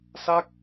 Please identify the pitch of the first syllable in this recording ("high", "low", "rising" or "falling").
falling